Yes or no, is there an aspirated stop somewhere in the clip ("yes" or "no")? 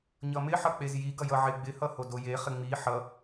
no